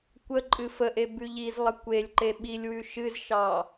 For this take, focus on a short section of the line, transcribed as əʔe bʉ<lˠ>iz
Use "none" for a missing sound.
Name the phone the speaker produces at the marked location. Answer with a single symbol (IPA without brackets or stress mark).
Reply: ʎ